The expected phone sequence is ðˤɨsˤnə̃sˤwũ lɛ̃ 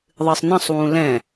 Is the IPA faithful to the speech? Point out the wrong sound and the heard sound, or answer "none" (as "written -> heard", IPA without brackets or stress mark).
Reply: none